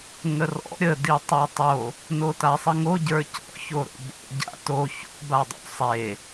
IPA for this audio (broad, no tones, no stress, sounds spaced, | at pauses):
ŋ ə r ɔ̰ ɾʲ ə d i tˤ ə˞ tˤ o | n o t a sˤ ə ŋ o ɟ ə˞ c ɔ̰ ç o ɾ o̰ b o̰ ɟ a̰ t o ç o̰ b a dˤ o̰ sˤ e